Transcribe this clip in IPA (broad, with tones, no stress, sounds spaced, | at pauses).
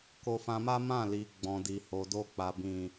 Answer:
k o˧ f ã˧ m a˦ m ã˦˨ l i˨ ɡ͡b ɔ̃˨ d i˨ h o˨ d o˧ k͡p a˨ b ĩ˨